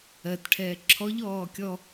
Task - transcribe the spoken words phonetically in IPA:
ɜ t ʈʰ ɛː ǁʰ ɔ ʎ ɔː kʲ ɔ

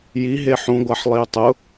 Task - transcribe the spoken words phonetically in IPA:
j i ɦ e ħ ũ ɡʷ a ħ lˠ i ʊ̯ tˤ ʊ

